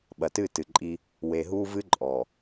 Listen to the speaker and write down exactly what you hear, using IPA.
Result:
ɓ ɐ˨ t ɨ˦˨ t ɨ˨ ǃʼ i˦ | w e˨ ɦ u˦ v ɨ˦ ǃʼ ɔ˨

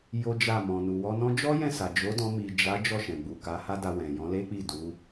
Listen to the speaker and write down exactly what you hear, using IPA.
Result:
j o˦ d͡ʒ a˦˨ m ɔ̃˨ n u˨ w ɔ˧ n ɔ̃˦ d͡ʒ ɔ˦ j ɛ̃˦˨ s a˨ d͡ʒ o˨˦ d ɔ̃˧ m i˨ d͡ʒ a˨˦ d͡ʒ ɔ˦˨ ʃ ɛ̃˨ ɡ͡b u˨ k a˨˦ h a˦ d a˧ w ɛ̃˨ j ɔ̃˨˦ l e˦ k͡p i˦˨ d u˨˦

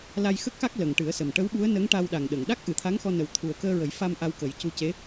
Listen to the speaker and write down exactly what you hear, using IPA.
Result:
l a˧ j x ə˦˥ k̚ x a˦˥ k̚ l ə˨˩ ŋ ʈ ɨ˨˩˦ ə̯ s ə˨˩ m ʈ ə˧˥ w ɓ u˧˥ ə̯ n ə˧˥ ŋ ʈ a˧ w ɗ a˨˩ ŋ ɗ ə˨˩˨ ŋ ɗ a˦˥ k̚ ʔ ɨ˨˩˦ t̪ʰ a˧˥ ŋ x ɔ˧ n ə˨˩ w t̪ʰ u˨˩ ə̯ k əː˧ ɹ ə˨˩˦ j f a˧ m ʔ a˧ w k ə˨˩˦ j c u˧ c e˧˥

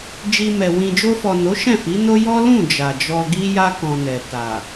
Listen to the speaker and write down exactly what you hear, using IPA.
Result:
d͡ʒ i˧ m ɛ˨ w ĩ˨ d͡ʒ o˧ f ɔ˨ n o˨˦ ʃ ɛ̃˦˨ f i˨˦ n o˦ j ɔ˦ l ũ˦˨ d͡ʒ a˨ d͡ʒ ɔ˧ ɡ i˦ j a˦ k ɔ̃˧ n ɛ˨ t a˨

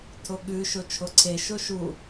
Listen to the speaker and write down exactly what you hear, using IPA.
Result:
tʰ o ɠ ʉ ʃ o t͡ʃʰ o ǀʰ e ʃ o ʃ u

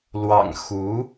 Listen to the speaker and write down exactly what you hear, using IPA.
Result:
l w ɑ̰˨˩ ŋ x u˧˥

